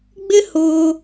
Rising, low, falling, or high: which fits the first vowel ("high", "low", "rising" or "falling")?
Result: high